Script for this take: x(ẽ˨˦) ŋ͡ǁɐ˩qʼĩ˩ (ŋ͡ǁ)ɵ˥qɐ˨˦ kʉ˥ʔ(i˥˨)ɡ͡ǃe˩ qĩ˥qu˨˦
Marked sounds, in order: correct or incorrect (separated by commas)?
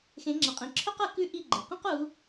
correct, incorrect, correct